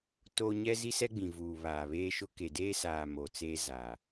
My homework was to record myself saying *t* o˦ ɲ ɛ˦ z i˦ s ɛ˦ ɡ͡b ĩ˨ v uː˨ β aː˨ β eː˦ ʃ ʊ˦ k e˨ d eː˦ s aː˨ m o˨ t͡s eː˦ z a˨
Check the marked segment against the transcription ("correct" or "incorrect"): correct